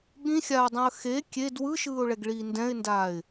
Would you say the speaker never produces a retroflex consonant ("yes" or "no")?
no